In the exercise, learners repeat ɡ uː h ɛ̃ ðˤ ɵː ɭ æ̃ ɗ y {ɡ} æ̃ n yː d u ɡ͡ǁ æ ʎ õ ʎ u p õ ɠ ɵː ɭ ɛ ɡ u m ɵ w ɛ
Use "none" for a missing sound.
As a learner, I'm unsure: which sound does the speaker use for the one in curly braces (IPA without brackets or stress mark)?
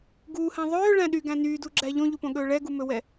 ɡ